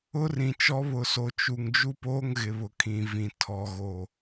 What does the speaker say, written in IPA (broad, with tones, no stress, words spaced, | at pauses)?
ʊ˦rĩ˨t͡ʃɔ˦ βʊ˨so˨t͡ʃu˨ŋ d͡ʒu˦poː˦ŋɣɪ˨ βʊ˨kʰĩ˨vĩ˨ tʰɔ˨ɣo˨